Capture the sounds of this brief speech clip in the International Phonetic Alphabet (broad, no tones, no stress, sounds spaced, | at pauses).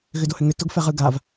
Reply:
ɣ ʏ d o h ʏ ŋ ʏ t o ɡ f ɛ ʁ ɯ ɡ a v